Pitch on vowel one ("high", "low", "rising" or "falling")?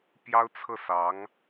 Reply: high